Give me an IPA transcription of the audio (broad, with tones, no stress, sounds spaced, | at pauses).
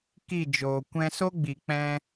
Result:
k i˦˨ d͡ʒ oː˨ kʷ ɛ̃˧ s o˦ ɡ͡b i˨ k͡p ɛ̃˧